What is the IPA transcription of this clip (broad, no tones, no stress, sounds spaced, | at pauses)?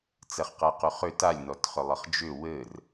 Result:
t͡s ɛ χ q ɛ q ʉ χ ʏ t a lʲ n ɔ t χ ʏ lˠ ə χ d͡ʒ ʏ w ɘ r